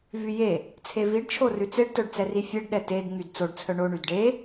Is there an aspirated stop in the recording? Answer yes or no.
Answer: yes